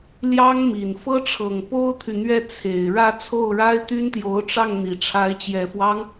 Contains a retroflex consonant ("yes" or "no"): yes